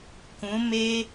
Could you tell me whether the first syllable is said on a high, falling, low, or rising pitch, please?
rising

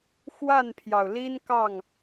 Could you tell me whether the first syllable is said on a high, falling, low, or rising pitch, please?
falling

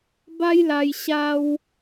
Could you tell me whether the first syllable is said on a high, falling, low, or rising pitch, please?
high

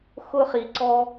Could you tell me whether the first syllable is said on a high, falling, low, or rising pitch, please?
high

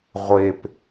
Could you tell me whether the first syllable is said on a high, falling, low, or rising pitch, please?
low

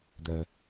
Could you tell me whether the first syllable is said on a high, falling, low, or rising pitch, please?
low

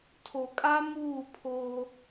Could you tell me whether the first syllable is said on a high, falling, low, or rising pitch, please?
low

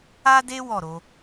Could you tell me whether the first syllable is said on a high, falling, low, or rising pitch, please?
high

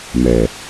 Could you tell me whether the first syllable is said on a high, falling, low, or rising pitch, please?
low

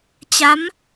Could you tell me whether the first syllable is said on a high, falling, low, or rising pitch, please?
rising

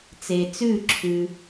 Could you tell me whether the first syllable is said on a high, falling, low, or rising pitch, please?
low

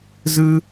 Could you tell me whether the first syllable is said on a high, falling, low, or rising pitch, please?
high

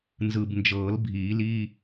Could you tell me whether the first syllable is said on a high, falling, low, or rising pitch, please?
low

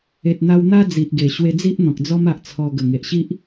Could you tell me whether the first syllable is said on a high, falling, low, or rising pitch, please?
low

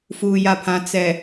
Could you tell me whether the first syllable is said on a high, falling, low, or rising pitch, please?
low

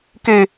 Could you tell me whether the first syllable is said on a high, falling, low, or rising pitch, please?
low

